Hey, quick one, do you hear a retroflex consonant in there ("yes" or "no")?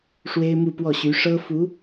yes